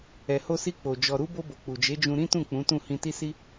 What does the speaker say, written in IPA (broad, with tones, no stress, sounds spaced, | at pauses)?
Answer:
ɛ˨ h o˧ s i˧ k͡p o˨ d͡ʒ ɔ˨ ɾ u˨˦ b o˧ b o˨ k͡p u˨ d͡ʒ e˨˦ d͡ʒ ũ˧ ɾ ĩ˦ t ũ˦˨ k͡p ũ˨˦ t ũ˦˨ h ĩ˧ t i˦ s i˦